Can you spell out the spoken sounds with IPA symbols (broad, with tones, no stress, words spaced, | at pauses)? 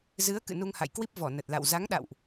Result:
zɨ˨˦ə̯ kɨ̰˧˨nu˧ŋha̰˧˨jkwi˦˥p̚ vɔ˧˩nə˨˩t̚la̰˧˨w za˨˦ŋɗa̰˧˨wʔ